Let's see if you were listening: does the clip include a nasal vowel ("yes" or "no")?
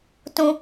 yes